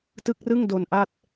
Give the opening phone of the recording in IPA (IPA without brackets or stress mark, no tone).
t